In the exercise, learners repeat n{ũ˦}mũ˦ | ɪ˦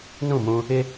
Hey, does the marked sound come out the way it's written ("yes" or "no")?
no